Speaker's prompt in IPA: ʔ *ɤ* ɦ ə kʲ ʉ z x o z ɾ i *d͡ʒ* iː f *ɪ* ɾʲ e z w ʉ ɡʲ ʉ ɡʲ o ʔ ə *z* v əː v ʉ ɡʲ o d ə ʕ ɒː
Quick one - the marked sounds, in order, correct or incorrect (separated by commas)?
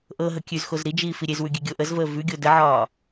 correct, correct, incorrect, correct